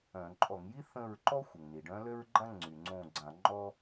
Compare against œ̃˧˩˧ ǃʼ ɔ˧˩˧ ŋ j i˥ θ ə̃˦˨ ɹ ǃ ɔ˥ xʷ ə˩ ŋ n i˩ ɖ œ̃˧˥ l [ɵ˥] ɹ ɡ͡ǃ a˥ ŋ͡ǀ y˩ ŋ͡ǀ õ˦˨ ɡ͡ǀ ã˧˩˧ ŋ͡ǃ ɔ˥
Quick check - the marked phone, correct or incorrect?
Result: incorrect